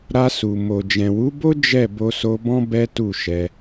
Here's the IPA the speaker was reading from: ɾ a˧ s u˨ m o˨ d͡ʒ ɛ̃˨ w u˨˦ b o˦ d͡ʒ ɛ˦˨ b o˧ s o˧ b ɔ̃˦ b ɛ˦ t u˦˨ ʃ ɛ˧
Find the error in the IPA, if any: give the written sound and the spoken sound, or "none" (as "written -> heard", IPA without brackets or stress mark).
none